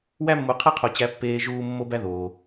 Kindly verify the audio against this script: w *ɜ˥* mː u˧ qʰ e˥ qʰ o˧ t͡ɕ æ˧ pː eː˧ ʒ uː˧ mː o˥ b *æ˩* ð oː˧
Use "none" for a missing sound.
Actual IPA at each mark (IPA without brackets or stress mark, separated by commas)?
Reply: æ˥, æ˥